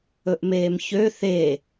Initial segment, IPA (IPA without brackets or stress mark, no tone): ɵ